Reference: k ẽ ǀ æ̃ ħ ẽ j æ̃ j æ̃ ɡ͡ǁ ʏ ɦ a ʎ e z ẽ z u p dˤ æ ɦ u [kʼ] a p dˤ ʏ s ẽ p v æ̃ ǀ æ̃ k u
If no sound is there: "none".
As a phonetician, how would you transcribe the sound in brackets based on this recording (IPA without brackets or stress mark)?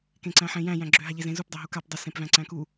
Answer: k